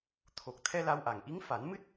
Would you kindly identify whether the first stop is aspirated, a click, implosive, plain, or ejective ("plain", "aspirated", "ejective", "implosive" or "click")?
aspirated